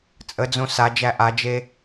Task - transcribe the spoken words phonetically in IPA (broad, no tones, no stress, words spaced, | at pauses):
t͡sʼəd͡zõ sad͡ʒæ ʔad͡ʒe